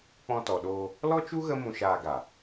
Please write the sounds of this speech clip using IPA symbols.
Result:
k͡p ɔ̃˧ t ɔ˨ ɗ oː˧ | l ɔ˦ t͡ʃ u˦ ɣ ə˦ m ũ˧ ʃ aː˧ ɡ a˨

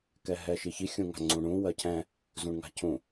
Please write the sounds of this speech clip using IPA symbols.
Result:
k ɛ ɦ ɛ ʃ i ç i xʲ ũ ŋ a̤ ŋ͡ǀ ũ ɳ ũ w ɜ cʰ ɛ̃ | z ũ ɳ ŋ a̤ cʰ ũ

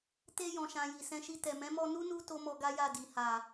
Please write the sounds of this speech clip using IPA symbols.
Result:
t e˧ j ɔ̃˨ ʃ ã˨ j i˨ s ɛ̃˧ ʃ i˧ t ɛ˨ m ɛ̃˨˦ m ɔ˧ n u˦ n u˧ t o˦ m ɔ˧ ɡ a˦ j a˦˨ d i˨ h a˨

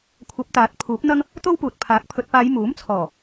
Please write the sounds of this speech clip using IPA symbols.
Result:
kʷʰ ɐ˨˥ p̚ t̪ aː˨˥ t̚ pʰ uː˨˥ p̚ n̪ ɐ˥ ŋ | t̪ o˥ w p uː˨ t̚ pʰ aː˨˥ k̚ pʰ ɵ˨ t̚ p aː˨˧ j m uː˨˥ m t͡sʰ ɔː˨˩

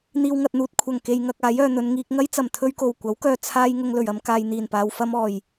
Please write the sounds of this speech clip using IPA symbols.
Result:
n̪ iː˨ w ŋ ɐ˨ t̚ n̪ uː˨ t̚ kʷʰ ɐ˨˩ ŋ k e˨ j ŋ ɐ˨ k̚ aː˨˥ j œː˨ n̪ ɵ˨˧ n ŋ iː˧ k̚ ŋ ɐ˥ j t͡s ɐ˨˩ m t̪ʰ ɵ˧ ɥ k o˨˩ w kʷ ɐ˨˥ w k œː˨ t͡sʰ aː˧ j ŋ ʊ˧ ŋ l ɵ˨˩ ɥ ɐ˧ m k aː˨ j n̪ iː˨˩ n p aː˨ w f ɐ˧ m ɔː˨˩ j

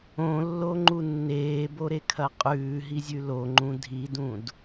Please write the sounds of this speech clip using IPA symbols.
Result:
õ lː o ŋ͡ǃ u nː eː b o ɾ e kʰ ɐ qʼ ʉː ɦ i zʲ ʉ l o ŋ͡ǃ ũ dʱ i d ũ d

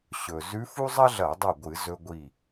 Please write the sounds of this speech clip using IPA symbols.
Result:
ɕ ɵ˩ z ʉ˧˥ f u˥ zˤ ɐ˥ ɮ ɐ˧˩˧ dˤ u˧˩ ɡʷ ɨ˧˩˧ z ɵ˧ ɡʷ i˧˩

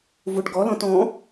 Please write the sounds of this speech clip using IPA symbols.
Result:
v u ɖ ɡ ɔ l ɔ̃ t ɔ̃

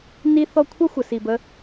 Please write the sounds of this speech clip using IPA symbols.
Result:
n i˦ θ ɔ˦ kʷʰ ʌ˦ xʷ ə˨ s i˨ b ə˦

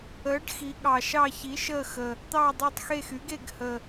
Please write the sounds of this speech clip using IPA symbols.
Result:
əː˩˥ ɖ x i˩˧ ɠ ɑ˨˩ ʃ ɑ˦˨ ç i˩˥ ʃ əː˦˨ x ə˨˩ | t̪ ɑː˦˨ dˤ əː˦˨ tˤ x e˦˨ x yː˩˥ ɡ e˦˨ ɡ h ə˨˩

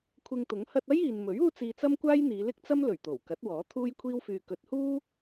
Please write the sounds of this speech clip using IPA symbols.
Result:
kʷʰ ɪ˧ ŋ t̪ ʊ˨˥ ŋ h ɐ˧ t̚ ɐ˥ j iː˨ n m ɵ˨˥ ɥ uː˥ t͡s iː˧ t͡s ɐ˥ m kʷ aː˥ j n̪ iː˨˧ l ɪ˥ k̚ t͡s ɐ˥ m l ɵ˨˩ ɥ t̪ o˨˩ w k ɐ˨˥ t̚ w ɔː˨˥ t̪ʰ uː˥ j kʷʰ iː˥ w f yː˧ k ɵ˨˥ t̚ h uː˥

